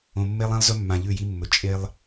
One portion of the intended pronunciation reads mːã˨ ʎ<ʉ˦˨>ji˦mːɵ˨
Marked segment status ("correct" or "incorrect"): correct